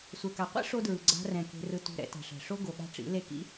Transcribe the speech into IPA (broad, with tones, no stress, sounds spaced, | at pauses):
sʷ ɛ˨ k a˨ qʷ ḭ˦ ʂ o˦ d ɹ ɯ˨ ɡ͡ǀ a̤˧ r ɛ̃˨ k e̤˧ r ɯ˧ t ṳ˧ ɾ ɛ̰˧ t a̤˨ ʂ ɛ̤˨ ʂ o˦ ɡ o˨ ɠ a̤˦ ʈ͡ʂ ḭ˨˦ l e˦ k ḭ˦